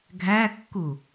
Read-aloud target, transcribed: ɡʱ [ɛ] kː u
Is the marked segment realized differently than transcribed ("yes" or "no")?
yes